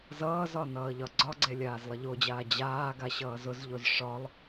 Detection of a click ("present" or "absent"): present